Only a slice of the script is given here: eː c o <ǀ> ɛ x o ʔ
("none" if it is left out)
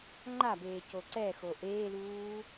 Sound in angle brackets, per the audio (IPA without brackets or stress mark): ǀ